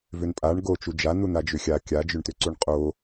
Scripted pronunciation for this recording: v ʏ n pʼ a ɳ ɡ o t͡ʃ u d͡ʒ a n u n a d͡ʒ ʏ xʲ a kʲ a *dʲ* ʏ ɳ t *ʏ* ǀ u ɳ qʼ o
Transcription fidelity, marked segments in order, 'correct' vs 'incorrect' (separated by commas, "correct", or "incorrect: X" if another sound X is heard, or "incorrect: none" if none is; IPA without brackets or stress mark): incorrect: d͡ʒ, correct